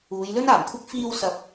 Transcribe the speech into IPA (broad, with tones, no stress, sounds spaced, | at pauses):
uː˨˧ j l ɵ˥ n aː˨˩ m kʷʰ ɪ˥ k̚ f iː˧ w s ɐ˨ p̚